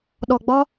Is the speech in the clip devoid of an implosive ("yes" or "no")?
no